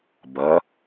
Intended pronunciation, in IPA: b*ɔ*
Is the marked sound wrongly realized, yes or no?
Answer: yes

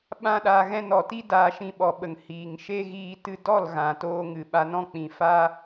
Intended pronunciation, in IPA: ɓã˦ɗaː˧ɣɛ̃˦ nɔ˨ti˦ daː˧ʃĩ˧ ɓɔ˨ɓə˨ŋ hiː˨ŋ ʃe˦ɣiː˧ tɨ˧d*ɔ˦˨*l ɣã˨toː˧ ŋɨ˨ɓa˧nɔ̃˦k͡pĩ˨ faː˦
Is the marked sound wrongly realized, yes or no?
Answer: no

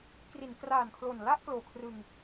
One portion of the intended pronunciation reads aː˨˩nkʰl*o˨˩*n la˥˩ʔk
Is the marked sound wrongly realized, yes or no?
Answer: no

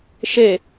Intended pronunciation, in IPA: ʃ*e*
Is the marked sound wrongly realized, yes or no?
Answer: no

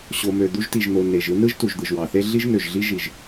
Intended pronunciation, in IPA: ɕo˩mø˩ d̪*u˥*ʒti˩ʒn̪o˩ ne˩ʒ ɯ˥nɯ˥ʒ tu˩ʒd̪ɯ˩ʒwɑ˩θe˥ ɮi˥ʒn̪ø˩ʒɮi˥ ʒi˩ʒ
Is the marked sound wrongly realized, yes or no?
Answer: no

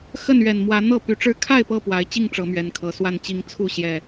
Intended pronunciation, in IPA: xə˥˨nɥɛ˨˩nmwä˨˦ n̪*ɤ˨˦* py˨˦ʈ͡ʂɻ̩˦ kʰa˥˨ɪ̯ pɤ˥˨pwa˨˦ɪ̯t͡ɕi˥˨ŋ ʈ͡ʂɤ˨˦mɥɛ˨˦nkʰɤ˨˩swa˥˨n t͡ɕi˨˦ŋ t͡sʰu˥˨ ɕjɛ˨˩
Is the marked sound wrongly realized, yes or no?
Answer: yes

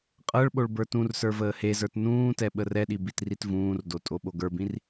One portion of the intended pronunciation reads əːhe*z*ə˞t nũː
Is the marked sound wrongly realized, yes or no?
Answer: no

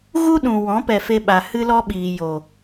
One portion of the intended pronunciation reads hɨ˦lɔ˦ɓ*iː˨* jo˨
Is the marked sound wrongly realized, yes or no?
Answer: no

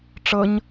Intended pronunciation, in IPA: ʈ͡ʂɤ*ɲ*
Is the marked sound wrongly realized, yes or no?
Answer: no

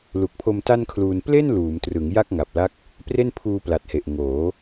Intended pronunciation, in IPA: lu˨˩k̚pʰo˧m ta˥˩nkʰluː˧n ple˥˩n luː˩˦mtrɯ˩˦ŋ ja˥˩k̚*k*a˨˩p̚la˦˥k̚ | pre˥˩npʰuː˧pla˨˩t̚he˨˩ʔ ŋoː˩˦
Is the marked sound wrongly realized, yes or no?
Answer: yes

